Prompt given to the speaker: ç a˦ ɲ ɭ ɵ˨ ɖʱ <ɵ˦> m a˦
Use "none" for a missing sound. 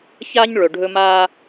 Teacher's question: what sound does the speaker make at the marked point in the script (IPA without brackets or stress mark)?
ɵ˦